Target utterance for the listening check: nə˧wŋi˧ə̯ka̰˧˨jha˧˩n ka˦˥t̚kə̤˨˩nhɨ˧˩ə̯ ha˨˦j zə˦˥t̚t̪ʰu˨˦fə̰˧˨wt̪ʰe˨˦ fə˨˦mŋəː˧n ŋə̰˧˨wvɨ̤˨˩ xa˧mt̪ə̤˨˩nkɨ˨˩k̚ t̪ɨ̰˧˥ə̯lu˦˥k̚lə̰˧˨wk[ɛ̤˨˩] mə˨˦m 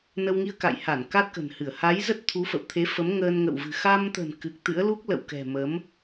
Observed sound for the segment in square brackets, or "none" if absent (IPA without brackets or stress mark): ɛ̤˨˩